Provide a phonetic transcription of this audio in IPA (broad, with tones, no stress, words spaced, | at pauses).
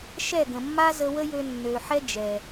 ʃɛ˦˨ɡə̃˨mːa˦ zə˧wə˦jø˧ nːø˨ħɛ˦ d͡ʒɛ˨